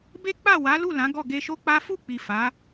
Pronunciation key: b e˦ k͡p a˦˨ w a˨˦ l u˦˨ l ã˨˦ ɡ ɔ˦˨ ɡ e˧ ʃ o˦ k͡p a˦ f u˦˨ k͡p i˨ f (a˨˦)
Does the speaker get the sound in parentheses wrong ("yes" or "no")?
no